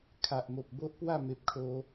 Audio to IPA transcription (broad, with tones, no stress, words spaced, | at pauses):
kʰa˨ʔmo˨p̚ bo˦ʔpwa˥˧ me˨p̚kʰo˧